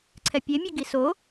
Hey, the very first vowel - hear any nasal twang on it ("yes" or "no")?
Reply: no